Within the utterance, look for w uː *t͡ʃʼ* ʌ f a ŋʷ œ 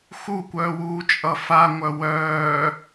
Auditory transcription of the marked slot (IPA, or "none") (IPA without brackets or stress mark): t͡ʃʼ